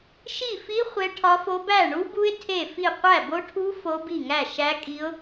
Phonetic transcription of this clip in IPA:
ʃi˥˩fi˦˥ χʷe˦˥ʈʰɒ˦˥fo˦˥ bæ˥˩ɳu˦˥bu˦˥ɪ̯ tʰe˥˩fi˥˩ qʷæ˥˩bo˦˥ʈʰu˦˥ fo˦˥bi˥˩ŋæ˥˩ ʃæ˦˥kʼi˦˥ʊ̯

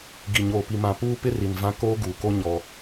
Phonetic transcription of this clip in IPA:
ɡi˨ɲoː˨pi˨ mã˨puː˦pɪ˦ri˨n vã˦koː˦ɡuː˨ko˦ ɲɔ˦

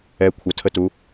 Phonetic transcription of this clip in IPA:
ɛ kʷʰətʰətu

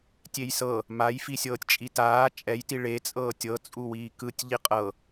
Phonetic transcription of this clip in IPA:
tʲejsɤ | maj fisʲɤːtʲt͡ʃʼitaː t͡ʃʼɛjti ɭet͡sʼɤː tʲɤt͡sʼuwiː kɯtʲ ʎiqʼɤ

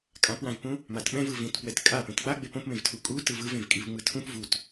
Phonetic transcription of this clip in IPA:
kʼãpwãvpũ | matɓɛ̃v ɯvĩtpwɛt kʼa pẽtk͡paɡ͡be põpmẽvtʰu kʼu tɯvɯvẽvkʼiv ŋ͡mɯtʰũp vut

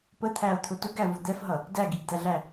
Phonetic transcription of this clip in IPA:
pət̪ʰæo̯t̪ʰʊ tʊɡævʊ d̪ɛfɦʌ | dæɡiɡd̪æɮæ

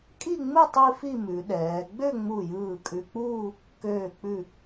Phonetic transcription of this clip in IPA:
kʼi˥˧ŋ͡mɯ˥˧ tˤi˥fi˥˧mʉ˩˧ɗɛː˩˧ ɡ͡bø˥˧ŋ͡mu˧˩jɯː˧˩ kʼʉ˧k͡puː˥˧ | køː˧˩k͡pʉ˧˩

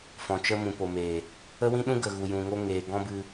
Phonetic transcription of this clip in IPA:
fɔ̃˨t͡ʃə˧ mũ˨po˨meː˨ | ə˦wĩ˦ɗũ˦ ɡə˨ɣu˨ jũ˨ŋo˧ŋeː˨ ɡɔ̃˦bɨ˧

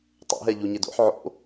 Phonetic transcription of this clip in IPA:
tˤo̰ ɦɛʎuɲedo̰ħ ʕo̰

